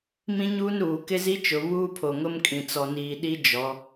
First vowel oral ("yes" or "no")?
no